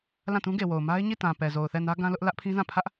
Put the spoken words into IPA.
lã˦˨tũ˦ɡe˨wo˨ʊ̯ ma˦ɪ̯ɲi˦˨tã˨ pɛ˨zo˨ʊ̯ θɛ˦˨nä˦ ɡã˦lʊ˦ʔ lä˦ʔpʰĩ˦zã˦˨ pʰä˦ʔ

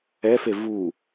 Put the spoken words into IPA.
ɛfe vu

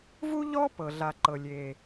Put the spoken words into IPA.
vu˥ʎɔ˥ pɤ˩ɮa˩ǃɤ˩ lʲe˩

